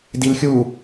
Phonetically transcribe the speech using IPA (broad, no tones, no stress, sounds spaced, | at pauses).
d i l xʲ u